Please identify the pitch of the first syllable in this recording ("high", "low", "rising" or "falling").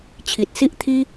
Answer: low